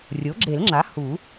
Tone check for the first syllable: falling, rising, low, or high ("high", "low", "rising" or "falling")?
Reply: rising